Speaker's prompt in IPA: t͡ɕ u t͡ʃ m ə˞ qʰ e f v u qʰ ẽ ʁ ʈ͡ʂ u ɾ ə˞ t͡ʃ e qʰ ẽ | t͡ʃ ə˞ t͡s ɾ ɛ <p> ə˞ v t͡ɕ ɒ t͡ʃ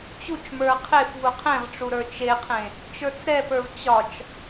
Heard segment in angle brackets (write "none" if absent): p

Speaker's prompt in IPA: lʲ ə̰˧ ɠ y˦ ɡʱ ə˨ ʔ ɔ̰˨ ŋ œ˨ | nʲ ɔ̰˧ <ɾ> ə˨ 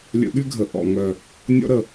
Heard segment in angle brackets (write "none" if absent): ɾ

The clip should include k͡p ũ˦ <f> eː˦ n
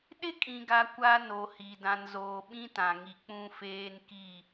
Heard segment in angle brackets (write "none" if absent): f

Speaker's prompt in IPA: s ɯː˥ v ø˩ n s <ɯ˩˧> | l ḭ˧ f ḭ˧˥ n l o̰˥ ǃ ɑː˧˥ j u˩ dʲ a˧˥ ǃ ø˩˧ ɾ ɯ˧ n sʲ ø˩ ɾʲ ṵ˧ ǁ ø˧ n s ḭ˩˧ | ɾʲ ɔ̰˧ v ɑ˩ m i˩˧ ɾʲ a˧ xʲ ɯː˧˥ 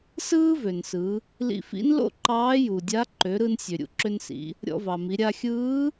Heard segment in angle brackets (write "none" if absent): ɯ˩˧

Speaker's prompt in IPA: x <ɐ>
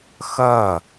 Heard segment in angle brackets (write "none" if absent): ɐ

